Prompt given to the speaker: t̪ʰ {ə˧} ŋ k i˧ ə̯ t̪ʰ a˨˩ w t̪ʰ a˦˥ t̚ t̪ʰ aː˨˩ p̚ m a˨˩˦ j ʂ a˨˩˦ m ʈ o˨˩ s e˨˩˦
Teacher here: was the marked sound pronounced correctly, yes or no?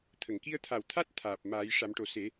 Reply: no